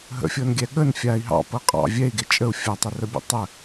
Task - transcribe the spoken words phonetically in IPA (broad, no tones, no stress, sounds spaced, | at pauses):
ɦ ə̰ fʲ ɤ n ɡʲ ɛ ɠ ə n fʲ a i̯ ɦ ɑ̰ p ɤ qʼ ɑ̰ vʲ ɛ i̯ ɡ e t͡ʃʼ ə u̯ fʲ a tˤ ə r ə bʲ ə̰ tˤ ə